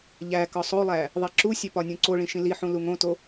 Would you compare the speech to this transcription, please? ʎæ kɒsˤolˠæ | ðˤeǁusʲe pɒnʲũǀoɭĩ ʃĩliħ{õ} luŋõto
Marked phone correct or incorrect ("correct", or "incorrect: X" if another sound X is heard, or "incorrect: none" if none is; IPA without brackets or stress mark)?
incorrect: ũ